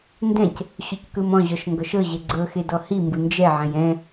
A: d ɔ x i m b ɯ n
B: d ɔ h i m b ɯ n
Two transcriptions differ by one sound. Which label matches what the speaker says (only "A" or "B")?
B